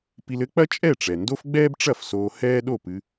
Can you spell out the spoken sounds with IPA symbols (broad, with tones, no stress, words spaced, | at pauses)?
pi˧lɘ˥k͡pɐ˥ t͡ʃʼɛ˥˩ʈ͡ʂɛ˩ ndo˥fɡ͡bɛː˥bʈ͡ʂɐ˥˩f soː˧hɛː˥ ɗo˥˩pɨ˧